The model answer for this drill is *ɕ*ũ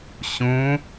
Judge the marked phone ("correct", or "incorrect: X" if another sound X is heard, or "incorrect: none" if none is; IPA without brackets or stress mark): correct